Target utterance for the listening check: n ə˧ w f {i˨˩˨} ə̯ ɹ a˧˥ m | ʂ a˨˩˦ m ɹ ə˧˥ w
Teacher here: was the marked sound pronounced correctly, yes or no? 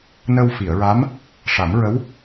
yes